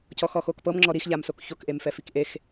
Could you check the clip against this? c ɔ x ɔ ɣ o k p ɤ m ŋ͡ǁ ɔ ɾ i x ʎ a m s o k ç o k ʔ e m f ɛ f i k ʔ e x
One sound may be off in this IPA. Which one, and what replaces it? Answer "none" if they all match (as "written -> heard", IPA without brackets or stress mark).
ɣ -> x